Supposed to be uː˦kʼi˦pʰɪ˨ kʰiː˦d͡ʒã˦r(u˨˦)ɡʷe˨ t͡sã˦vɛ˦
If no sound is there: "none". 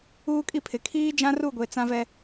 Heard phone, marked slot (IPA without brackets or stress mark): u˦˨